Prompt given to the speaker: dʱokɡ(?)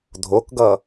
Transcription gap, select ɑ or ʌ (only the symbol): ʌ